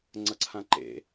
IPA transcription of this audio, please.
ŋ͡ǀ ʌ ǀʰ ã ǃ ḛ

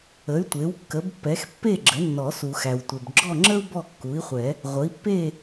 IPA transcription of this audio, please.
ə˩˥ y̯ tʷ e˩˥ w kː ə˩˥ b pː ɛ˩˥ x pː e˥˨ ɡ͡ǁ ə˩˥ nː ɔ˨˩˦ s u˨ x æ˨ w tʷ e˨ b ɡ͡ǁ ɔ˥˨ ŋ͡ǁ ə˥ u̯ b ɔ˥˨ kː u˩˥ i̯ χʷ ɛ˨˩˦ | ʁʷ ə˩˥ i̯ pː e˥˨

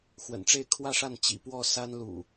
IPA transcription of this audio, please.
x w ə̰˨˩ n ʈ͡ʂ e˥˨ ɪ̯ kʰ w ä˥˨ ʂ a˥˨ n t͡ɕ ḭ˨˩ p w ɔ˥˨ s a˦ n l ṵ˨˩

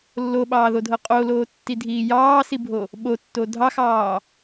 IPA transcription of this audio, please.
lː o ɓ ɑː ð o dʱ ɤ qʼ o l oː tː i dʱ iː j ɑː s i bʱ o | ɓ o tː o dʱ ɑ x ɑː

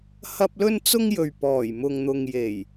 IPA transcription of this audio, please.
h ɐ˥ p̚ l ɵ˥ n t͡s ʊ˥ ŋ j ɵ˨ ɥ p ɔː˨˩ j m ʊ˨ ŋ n̪ ʊ˨ ŋ j e˨˩ j

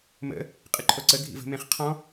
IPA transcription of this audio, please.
m ə̰ | qʼ ɨ ǃʰ o ǀ ə ɡʱ ḭ v ə̤ m ẽ χ qʰ ɔ̃

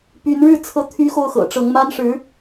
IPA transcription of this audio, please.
p y˧˥ n ɻ ɻ̩˥˩ t͡sʰ ɤ˧˥ t̪ʰ y˧˥ x o˥˩ ʊ̯ x ɤ̰˨˩ ʈ͡ʂ ɤ˧˥ ŋ m a˥ n ʂ ɻ̩˧˥

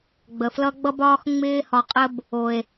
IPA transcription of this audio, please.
ɡ͡b ə˨ f l ʌ˦ ɡ͡b ʌ˦ b ɒː˦ x ŋ͡m ɪː˧ h ɒ˨ qʼ ə˧ b | o˨ e̯

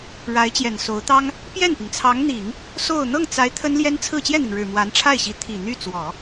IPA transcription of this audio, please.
ɻ a˧˥ ɪ̯ t͡ɕ j ɛ˨˩ n s o˧˥ ʊ̯ t̪ ɑ˥ ŋ | p j ɛ˥˩ n p i˩ ŋ t͡sʰ ɑ˧˥ ŋ n̪ i˨˩˦ ŋ | s o˥˧ ʊ̯ n̪ ɤ˥˩ ŋ t͡s a˧˥ ɪ̯ t̪ʰ ə˥ n l j ɛ˥ n t͡sʰ ɹ̩˥˧ t͡ɕ j ɛ˥˩ n̪ i˩ ŋ ɻ ɻ̩˨˩ m w a˧˥ n ʈ͡ʂʰ a˥˩ ɪ̯ ɕ i˧˥ t̪ʰ i˨˩ n̪ y˥˩ t͡s w ɔ˨˩˦

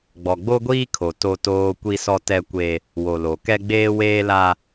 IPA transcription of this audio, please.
ɡ͡b ɔ˨ ɡ͡b o˦ ɡʷ iː˦ kʰ o˨ t o˦ t oː˦ kʷ i˦ s ɔ˦ t ɛ˦ kʷ e˦ | w o˨ l o˨ k ɛ˦ ɡ͡b eː˦ w eː˦ l a˦

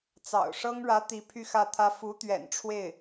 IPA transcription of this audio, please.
t͡s ɑ̰˨˩ ʊ̯ ʂ ɤ˥ ŋ ɻ ä˧˥ t̪ i˧˥ pʰ y˥˧ x ä˥˩ t̪ʰ ä˥ f u˧˥ t̪ ɥ ɛ̰˨˩ n ʈ͡ʂʰ w e˥˩ ɪ̯

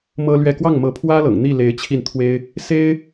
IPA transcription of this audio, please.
m ɤ˥ l ɥ ɛ˥˧ k w ɑ˥˩ ŋ m ɤ˧˥ pʰ w ä˥ l ɤ̰˨˩ ŋ n̪ i˥˩ l e˧˥ ɪ̯ t͡ɕʰ i˥˩ n t̪ʰ w e˥ ɪ̯ | s e˥ ɪ̯

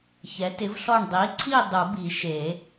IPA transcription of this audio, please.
ç ɛ˩˥ t ɪ˩˥ v ɬ ɔ˦˨ ɳ dˤ i˩˥ ǀʰ i˦˨ dˤ u˨˩˦ b i˨˩˦ ʃ e˨˩˦

